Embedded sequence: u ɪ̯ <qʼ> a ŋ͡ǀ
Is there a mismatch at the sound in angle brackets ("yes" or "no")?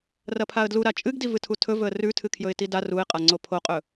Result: no